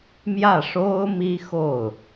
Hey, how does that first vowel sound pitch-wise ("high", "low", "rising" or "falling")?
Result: falling